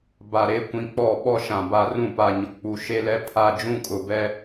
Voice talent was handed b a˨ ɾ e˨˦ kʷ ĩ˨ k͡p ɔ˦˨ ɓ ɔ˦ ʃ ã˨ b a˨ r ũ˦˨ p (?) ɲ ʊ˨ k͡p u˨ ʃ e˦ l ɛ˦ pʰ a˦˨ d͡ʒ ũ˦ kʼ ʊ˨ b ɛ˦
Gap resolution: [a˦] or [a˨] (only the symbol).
a˨